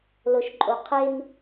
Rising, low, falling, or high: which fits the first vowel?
low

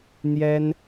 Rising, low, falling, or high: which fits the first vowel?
high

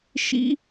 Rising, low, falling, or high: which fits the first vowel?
high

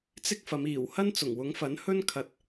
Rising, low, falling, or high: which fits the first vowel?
high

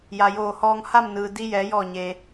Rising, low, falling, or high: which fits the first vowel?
low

